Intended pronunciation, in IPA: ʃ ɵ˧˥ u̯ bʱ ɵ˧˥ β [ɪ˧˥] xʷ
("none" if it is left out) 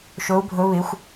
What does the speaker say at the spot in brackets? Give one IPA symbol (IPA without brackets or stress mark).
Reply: ɪ˧˥